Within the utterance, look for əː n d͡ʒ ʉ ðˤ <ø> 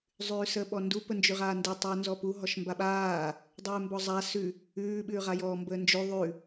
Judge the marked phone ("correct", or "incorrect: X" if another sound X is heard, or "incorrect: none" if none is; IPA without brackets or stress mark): incorrect: ʉ